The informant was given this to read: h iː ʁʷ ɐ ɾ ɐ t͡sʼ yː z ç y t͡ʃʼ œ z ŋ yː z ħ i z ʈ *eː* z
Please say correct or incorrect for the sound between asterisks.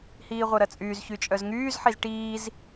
incorrect